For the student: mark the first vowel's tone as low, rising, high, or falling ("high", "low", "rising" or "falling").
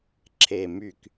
low